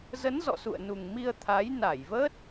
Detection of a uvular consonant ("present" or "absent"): absent